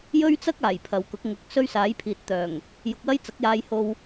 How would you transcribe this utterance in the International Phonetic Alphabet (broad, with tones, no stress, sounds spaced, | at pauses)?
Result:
j ɵ˥ ɥ t͡s ɐ˥ k̚ aː˨˩ j pʰ ɐ˨˧ w k ʊ˨˥ k̚ ŋ ʊ˨˥ k̚ s ɵ˥ ɥ s aː˨˥ j pʰ iː˨ t̚ t̪ œː˨˩ ŋ | j ʊ˧ k̚ w ɐ˥ j t͡s ɐ˨˥ k̚ j aː˧ j h o˧ w